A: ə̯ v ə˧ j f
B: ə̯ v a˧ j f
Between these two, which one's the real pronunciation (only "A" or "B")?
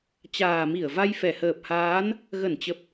B